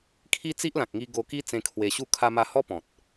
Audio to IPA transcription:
kʰ i˦ t͡s i˦ ʔ l ã˨ k̚ ŋ i˧ ɡ o˧ k i˦ t͡s ẽ˧ kʰ w e˧ ɕ u˥˧ kʰ a˧ m a˧ h ɔ˦ p ɔ̃˨ t̚

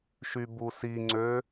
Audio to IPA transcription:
ʃ y b u s i ŋ͡ǀ ø

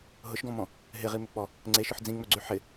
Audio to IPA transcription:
ɦ ʊ ʃ ɡ ɔ̃ m ɔ̃ | ɦ ɪ ʁ i m ʏ k͡p ɔ | ŋ͡ǀ e ʃ ʊ ħ d͡z ĩ ŋ͡m œ ɡ͡ǀ y ħ ɪ

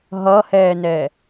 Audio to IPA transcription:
ɦ ʌ h ɛː n ɛ

